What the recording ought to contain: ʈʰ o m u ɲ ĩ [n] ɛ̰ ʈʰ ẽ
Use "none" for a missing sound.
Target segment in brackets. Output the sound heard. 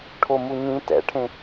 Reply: t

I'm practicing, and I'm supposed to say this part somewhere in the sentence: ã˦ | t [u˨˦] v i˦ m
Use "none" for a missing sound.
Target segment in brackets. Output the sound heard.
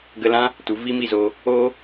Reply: u˨˦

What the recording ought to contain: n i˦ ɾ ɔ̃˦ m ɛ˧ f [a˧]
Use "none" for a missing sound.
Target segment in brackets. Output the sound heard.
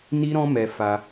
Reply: a˧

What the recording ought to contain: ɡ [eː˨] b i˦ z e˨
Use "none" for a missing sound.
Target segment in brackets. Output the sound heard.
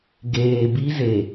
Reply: eː˨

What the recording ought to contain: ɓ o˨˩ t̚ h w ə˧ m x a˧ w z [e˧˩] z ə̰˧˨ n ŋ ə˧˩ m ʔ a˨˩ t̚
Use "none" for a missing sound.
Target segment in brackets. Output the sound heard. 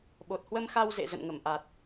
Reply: ḛ˧˨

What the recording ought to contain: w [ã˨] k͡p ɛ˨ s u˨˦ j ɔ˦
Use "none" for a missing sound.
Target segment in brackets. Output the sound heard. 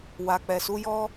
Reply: a˨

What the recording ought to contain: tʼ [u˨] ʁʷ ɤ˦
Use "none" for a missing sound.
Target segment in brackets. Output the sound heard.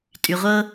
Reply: y˨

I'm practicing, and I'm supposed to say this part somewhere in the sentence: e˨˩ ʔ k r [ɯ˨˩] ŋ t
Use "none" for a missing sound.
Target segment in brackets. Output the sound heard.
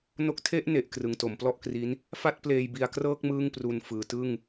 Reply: ɯ˩˦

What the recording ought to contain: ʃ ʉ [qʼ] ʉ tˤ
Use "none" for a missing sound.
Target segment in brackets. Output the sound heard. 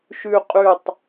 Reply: qʼ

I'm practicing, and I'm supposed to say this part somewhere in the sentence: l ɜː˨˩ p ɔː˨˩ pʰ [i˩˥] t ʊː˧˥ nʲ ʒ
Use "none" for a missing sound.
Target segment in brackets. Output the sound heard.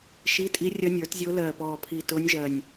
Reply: i˨˩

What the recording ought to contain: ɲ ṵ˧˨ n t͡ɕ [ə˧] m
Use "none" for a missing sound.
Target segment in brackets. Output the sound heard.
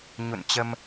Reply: ə˧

